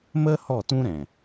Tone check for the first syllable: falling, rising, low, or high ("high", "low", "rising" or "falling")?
high